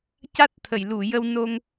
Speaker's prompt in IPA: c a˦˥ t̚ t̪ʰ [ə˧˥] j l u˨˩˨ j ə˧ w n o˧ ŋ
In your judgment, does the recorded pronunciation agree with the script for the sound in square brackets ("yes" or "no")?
no